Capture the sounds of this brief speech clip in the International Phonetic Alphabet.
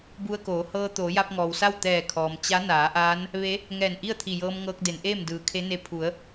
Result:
b u˧ ə̯ k oː˩˧ h ɤː˧ t̪ oː˩˧ j a˧ p̚ ŋ ɔː˩ w s a˥˨ w t̪ ɛː˧˩ kʰ ɔː˩ m t͡ɕ a˧˥ n aː˩˧ ʔ aː˧˥ n | ʋ e˧˥ | ŋ ɛː˧˩ n ʔ i˥˨ ə̯ t̪ʰ i˧˩ j ɤː˧ m ŋ ɤː˧ k̚ d e˩˧ n ʔ eː˥˨ m d ɯː˩ kʰ e˧˥ n e˧˥ pʰ u˩˧ ə̯

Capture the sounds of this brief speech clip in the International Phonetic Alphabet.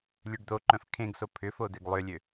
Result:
lʲ ø ɖ d̪ o ǃ œ̃ f kʰ ẽ ɡ s o pʰ ʏ f o d̪ e ɡ lˠ ʏ lʲ ø

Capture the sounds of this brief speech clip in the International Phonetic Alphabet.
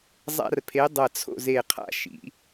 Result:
zˤ a̰˦ r pʰ e˨˥ dˤ ɐ˧˩ t͡sʰ o̰˥˨ z e˧˩ qʰ a̰˦ ʃ ḭ˨˩˦

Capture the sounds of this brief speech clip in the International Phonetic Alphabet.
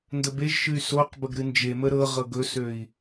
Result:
n d ə b e ʒ ʃ ɨ y̯ s o q b ə ɡ ɾ ɨ n d͡ʒ e m ə ɾ ɤ ʁ ɤ ɡ ɵ s ø i̯

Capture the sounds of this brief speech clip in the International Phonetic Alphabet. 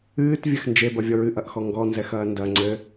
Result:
ɨː t vʲ ɘ x n d͡ʒ e b ɐ vʲ ɔ ɹ ɨ ʔ ɐ ʔ x ɔ ŋ ɡ ɔ n z ɛ x ɐː n d ɐ ŋ͡ǀ ɘ

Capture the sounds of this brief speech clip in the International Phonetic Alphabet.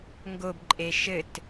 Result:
ŋ ɡ o b ǃʼ e ʃ ɘ t

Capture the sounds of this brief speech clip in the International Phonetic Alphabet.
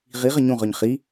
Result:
ʁ i ʁ ə ɲ ũ ʁ œ ɲ χ i

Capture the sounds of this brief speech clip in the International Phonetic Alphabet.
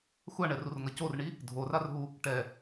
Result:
xʷ a ɳ ɛ r u r ŋ ʌ c o r ɳ i | dʱ o r a r ɦ u | ʈ ɛ

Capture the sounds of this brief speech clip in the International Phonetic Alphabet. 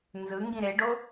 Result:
n z ɯ ŋ ɡ ĩ ɾ e ɖ o

